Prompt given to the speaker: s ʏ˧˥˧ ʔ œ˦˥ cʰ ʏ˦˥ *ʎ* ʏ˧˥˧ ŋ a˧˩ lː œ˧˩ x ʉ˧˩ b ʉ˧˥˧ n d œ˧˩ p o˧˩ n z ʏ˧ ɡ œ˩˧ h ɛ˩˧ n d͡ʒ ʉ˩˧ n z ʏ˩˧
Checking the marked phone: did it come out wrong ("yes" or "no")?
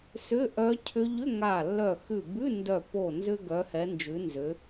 no